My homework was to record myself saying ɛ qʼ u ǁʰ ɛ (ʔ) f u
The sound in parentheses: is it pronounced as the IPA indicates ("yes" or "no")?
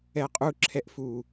yes